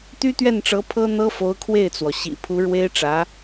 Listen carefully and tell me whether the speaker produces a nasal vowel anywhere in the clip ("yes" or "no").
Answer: no